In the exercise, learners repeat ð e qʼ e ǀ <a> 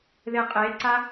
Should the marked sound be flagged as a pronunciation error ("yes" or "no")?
no